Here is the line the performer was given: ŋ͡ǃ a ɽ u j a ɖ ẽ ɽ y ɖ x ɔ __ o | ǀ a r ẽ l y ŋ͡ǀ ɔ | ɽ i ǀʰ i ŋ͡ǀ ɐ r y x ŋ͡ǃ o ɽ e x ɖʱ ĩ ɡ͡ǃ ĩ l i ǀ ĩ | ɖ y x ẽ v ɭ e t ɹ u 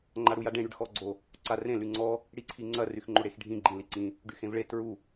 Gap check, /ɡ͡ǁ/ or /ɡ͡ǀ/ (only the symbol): ɡ͡ǀ